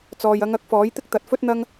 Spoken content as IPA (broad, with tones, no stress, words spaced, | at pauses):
t͡sɔː˨jɐ˨˧ŋ ɐ˨˥k̚fɔː˨˥jt̪ɪ˥k̚ t̪ɐ˨˥t̚fɵ˥t̚n̪ɐ˥ŋ